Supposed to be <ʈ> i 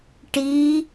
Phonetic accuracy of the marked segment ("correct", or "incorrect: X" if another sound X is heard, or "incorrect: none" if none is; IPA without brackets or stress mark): correct